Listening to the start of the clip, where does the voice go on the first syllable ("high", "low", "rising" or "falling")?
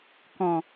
low